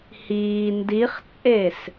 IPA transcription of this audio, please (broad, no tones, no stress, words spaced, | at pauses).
hiː ndiχt͡sʼes